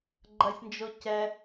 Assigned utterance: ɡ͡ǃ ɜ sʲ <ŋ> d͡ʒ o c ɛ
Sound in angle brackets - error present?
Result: yes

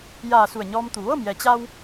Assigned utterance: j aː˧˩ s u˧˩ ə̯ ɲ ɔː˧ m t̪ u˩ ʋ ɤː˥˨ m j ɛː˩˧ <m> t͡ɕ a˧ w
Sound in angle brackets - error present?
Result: yes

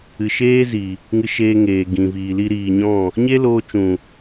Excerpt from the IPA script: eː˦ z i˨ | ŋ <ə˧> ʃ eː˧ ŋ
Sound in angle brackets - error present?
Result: yes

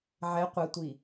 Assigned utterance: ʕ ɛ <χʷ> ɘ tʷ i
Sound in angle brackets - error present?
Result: yes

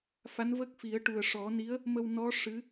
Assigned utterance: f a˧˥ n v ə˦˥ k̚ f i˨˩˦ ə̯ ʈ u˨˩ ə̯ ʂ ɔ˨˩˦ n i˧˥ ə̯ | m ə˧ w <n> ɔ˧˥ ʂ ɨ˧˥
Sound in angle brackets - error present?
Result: no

